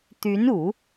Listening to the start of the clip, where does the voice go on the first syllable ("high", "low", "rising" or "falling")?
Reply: rising